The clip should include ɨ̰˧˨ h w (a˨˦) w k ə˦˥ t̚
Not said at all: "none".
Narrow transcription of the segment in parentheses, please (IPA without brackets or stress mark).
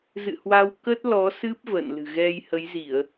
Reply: a˧